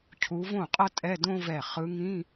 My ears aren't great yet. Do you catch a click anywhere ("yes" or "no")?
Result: no